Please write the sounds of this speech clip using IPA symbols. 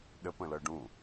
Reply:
ɗ ə p ə̃ l ɤ ɖ ũ

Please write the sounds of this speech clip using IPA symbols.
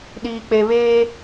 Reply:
ɗ iː˨ k͡p e˨ β eː˦

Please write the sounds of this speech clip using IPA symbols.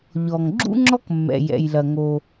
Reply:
ʎ ɔ˩ ŋ ɡ͡ǁ ṵ˥ ŋ͡ǁ ɔ˥ k mː ɛ̰˩ j ɛ̰˩ j l ɐ˩ ŋ o˩

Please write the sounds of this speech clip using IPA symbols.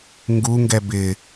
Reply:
ŋ ɡ u ŋ ɡ ɛ b ɪ

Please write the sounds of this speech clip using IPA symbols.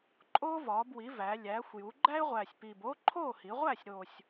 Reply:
ǃʼ oː˥ v ɒː˩˧ b w i˩˧ v æ˩˧ lʲ æː˩˧ xʷ j u˩˧ ɡ͡ǃ æ˥ ɪ̯ ʁʷ æː˨˩ sʲ p iː˨˩ b oː˥ ǃʰ oː˥˨ h i˩˧ ʁʷ æː˥˨ sʲ ɾ o˨˩ sʲ

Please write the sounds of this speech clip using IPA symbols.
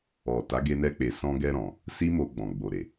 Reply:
ɔ˨ t a˨˦ ɡ e˧ n ɛ˧ k͡p e˨ s ɔ̃˧ ɡ ɛ˧ ɾ ɔ̃˨ | s i˦ m o˧ ɡ͡b ɔ̃˨ ɡ͡b o˨ ɾ e˨

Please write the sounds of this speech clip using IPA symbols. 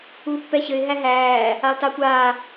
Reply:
u pː ɛ ɕ ɘ ɪ̯ ɦ æ ɦ æː | a lˠ t a kʷ aː

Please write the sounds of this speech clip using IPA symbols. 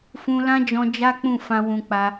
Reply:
f ũ˧ l ã˦ d͡ʒ ɔ̃˧ d͡ʒ a˦ k͡p ũ˦˨ f ã˧ w ũ˧ k͡p a˧

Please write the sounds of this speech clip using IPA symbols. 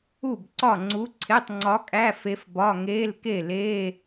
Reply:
u˥˩ b ǀ ɒ˥˩ ŋ͡ǀ u˧˥ ǀʰ e˧˥˧ tˤ ŋ͡ǀ ɒ˧˥ kʼ æ˧˥˧ f e˧˥ f b ɒ˧˥˧ ŋ eː˧˥˧ l k e˥˩ l eː˧˥˧

